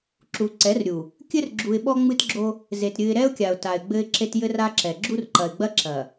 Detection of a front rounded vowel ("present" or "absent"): absent